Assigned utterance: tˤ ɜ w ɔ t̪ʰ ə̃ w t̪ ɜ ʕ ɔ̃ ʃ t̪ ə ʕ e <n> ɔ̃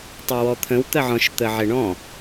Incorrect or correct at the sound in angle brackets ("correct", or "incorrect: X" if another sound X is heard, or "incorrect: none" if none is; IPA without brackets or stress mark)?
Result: incorrect: ɳ